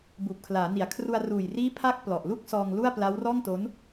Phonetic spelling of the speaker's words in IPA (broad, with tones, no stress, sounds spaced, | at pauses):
b uː˨˩ p̚ kʰ l aː˩˦ n i˨˩ a̯ kʰ r u˧ a̯ r uː˨˩ j r iː˦˥ pʰ a˥˩ k̚ p l ɔ˨˩ ʔ l u˥˩ k̚ s ɔː˧ ŋ l u˥˩ a̯ p l a˦˥ w r ɔː˥˩ ŋ t o˦˥ n